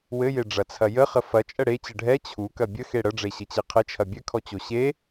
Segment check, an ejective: present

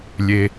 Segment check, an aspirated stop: absent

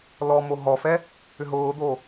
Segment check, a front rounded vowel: present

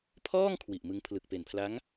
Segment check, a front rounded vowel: absent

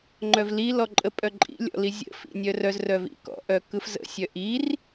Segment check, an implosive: absent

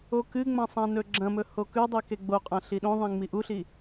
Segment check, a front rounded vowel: absent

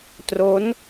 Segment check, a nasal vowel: absent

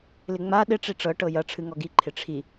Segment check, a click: present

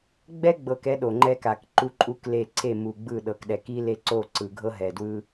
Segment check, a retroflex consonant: absent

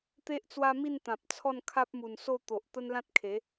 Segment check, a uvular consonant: absent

